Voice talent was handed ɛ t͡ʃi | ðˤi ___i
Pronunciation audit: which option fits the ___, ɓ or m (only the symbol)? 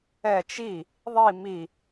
m